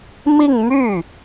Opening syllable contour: falling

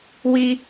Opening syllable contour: low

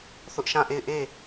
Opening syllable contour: high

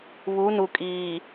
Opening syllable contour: rising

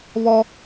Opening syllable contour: high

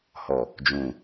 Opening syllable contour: low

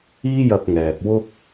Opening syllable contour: high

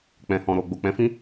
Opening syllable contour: low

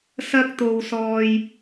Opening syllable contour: high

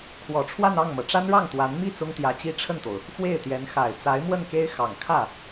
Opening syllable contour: low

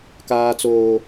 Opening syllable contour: high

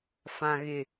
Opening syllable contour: low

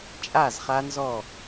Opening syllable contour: falling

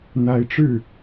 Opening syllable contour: rising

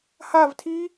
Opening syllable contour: falling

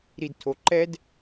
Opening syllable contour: low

